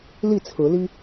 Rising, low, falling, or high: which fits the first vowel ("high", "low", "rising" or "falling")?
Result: falling